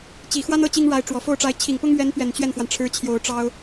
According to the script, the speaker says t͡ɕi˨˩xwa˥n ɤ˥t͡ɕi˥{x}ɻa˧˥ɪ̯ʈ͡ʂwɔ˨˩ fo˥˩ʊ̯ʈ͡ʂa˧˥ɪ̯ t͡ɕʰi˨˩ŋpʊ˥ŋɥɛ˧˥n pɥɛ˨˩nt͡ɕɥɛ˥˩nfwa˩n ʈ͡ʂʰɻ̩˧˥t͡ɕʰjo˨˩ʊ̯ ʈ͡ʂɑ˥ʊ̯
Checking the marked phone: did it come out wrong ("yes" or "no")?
yes